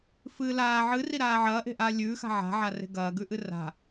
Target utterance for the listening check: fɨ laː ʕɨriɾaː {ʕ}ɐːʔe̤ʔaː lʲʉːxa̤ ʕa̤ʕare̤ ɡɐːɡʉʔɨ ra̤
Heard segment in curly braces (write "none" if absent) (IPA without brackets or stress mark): ʕ